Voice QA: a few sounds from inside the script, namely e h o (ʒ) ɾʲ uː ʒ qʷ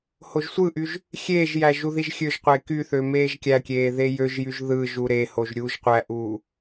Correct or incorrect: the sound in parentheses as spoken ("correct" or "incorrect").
correct